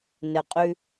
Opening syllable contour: low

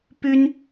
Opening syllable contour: high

